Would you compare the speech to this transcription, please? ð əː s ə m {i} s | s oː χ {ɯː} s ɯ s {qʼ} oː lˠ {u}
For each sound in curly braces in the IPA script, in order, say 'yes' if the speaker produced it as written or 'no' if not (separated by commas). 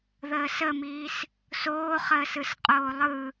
no, no, yes, no